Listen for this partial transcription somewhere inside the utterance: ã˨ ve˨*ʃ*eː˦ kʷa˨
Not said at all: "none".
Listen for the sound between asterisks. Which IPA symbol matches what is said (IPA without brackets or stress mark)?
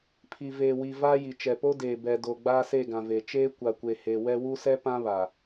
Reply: t͡ʃ